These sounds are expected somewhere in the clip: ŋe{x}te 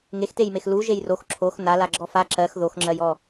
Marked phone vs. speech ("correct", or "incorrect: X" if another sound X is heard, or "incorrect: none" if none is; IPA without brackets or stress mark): correct